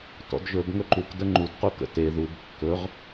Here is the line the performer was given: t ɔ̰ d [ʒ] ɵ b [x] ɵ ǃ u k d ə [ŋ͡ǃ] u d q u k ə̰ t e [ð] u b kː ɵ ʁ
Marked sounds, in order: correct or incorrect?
correct, incorrect: ŋ, correct, correct

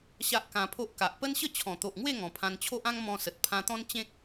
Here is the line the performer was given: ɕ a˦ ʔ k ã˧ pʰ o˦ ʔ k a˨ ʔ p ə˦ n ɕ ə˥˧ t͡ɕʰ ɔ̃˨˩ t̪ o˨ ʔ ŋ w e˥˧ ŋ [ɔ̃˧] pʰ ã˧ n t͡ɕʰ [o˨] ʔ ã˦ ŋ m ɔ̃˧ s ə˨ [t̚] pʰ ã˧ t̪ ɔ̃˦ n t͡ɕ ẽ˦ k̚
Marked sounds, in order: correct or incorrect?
incorrect: ɔ̃˨˩, incorrect: o˦, correct

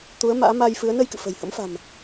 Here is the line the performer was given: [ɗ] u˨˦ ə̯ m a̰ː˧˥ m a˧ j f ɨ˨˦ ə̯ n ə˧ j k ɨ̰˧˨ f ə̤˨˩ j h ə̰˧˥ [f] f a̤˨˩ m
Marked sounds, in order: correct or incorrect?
incorrect: t̪, incorrect: m

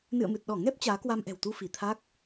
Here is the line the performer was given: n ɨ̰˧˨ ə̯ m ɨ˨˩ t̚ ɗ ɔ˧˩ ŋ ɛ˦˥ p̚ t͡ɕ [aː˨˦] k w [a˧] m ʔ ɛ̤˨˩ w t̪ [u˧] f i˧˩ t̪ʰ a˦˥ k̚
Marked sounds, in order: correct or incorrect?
correct, correct, correct

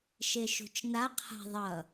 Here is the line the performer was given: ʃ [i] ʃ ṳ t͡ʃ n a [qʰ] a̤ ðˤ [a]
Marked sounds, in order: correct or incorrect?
incorrect: e, correct, incorrect: ʌ

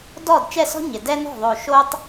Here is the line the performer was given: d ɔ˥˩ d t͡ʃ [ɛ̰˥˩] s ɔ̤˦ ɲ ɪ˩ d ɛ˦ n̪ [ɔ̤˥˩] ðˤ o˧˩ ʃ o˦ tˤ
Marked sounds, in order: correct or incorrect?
incorrect: ɛ˥˩, correct

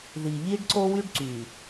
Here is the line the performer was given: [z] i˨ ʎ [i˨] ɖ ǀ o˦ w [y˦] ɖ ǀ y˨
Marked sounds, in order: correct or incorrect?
incorrect: ð, incorrect: i˦, correct

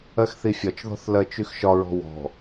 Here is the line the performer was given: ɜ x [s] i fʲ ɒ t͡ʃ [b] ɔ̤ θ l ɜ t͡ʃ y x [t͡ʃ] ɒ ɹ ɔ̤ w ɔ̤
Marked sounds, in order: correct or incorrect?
incorrect: θ, incorrect: ð, incorrect: ʃ

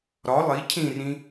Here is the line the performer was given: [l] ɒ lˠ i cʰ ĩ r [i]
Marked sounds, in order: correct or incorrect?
incorrect: ɾ, incorrect: ĩ

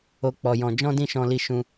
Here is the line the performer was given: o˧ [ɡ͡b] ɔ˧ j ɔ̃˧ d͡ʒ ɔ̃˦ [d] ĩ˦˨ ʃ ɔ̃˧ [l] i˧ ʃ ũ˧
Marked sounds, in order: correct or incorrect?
incorrect: k͡p, correct, correct

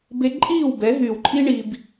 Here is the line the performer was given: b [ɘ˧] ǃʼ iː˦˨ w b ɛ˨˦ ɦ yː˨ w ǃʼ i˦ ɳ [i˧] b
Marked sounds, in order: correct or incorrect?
incorrect: e˧, correct

